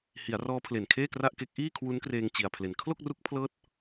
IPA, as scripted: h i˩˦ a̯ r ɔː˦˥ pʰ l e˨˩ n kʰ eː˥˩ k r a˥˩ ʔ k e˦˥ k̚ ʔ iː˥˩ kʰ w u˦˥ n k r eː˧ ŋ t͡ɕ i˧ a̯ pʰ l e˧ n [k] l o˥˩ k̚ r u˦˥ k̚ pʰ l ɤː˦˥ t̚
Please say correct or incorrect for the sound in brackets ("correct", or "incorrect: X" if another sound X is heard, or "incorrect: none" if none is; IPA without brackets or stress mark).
incorrect: kʰ